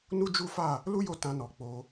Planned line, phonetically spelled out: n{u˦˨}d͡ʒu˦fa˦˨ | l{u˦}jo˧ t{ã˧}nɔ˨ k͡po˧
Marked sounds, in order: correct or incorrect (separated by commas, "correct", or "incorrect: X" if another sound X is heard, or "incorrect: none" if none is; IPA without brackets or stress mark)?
incorrect: u˦, correct, correct